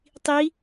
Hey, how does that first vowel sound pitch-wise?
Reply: rising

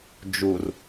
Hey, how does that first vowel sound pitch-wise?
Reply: low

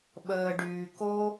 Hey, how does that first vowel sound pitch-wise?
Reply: low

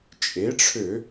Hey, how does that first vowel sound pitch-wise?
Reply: rising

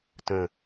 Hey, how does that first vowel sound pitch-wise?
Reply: low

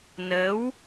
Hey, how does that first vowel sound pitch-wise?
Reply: rising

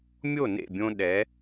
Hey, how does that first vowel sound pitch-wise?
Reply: falling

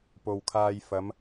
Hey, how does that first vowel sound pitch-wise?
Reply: low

